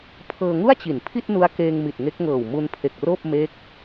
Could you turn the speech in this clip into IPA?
pʰ ɤː˧ ŋ u˥˩ a̯ t͡ɕ i˩˦ n pʰ i˥˩ t̚ n u˦˥ a̯ k eː˧ ŋ m i˨˩ t̚ ŋ e˦˥ k̚ ŋ ɤː˨˩ w m u˧ n pʰ e˨˩ k̚ r oː˥˩ p̚ m e˦˥ k̚

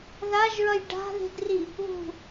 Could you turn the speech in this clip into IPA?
ð a ʒ ɹ ʌ j ɖ a̤ ð e̤ d r i | β ṳ

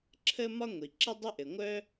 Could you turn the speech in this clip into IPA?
ǁʰ ə˥ m ɒ˥ ŋʷ i˩ ǁ ə˥ dˤ ə˥ ʔ ɘ˩ ŋʷ œ˥

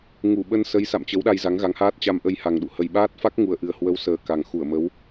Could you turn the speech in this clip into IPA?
ŋ u˧˩ ɓ ə˧ n s ə˨˦ j s a̰˧˨ m t͡ɕ ə˨˦ w ɗ a˧ j z a˨˦ ŋ ɣ a˨˦ ŋ h aː˦˥ t̚ t͡ɕ a˧ m ʔ ə˧ j h a˨˩ ŋ ɗ ṵ˧˨ h ə˨˩ j ɓ aː˦˥ t̚ f a˦˥ k̚ ŋ u˨˩ ə̯ ʔ ɨ˨˩ ə̯ h w ə˨˦ w s əː˨˩ k a˨˩ ŋ x u˧˩ ə̯ m ə˨˦ w

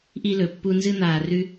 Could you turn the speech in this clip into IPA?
ʔ i˧ l ɵ˨ pː u˧ n z ɨ˦ n̪ aː˧ r ʉ˦

